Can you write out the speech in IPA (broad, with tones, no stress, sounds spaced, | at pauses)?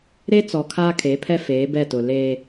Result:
ɾ e˦ t͡s ɔ˨ kʰ aː˦ kʰ e˨˦ pʰ ɛ˦ f eː˨˦ b ɛ˦˨ t ʊ˨ l e˦